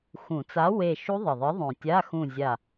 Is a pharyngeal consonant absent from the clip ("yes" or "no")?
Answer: yes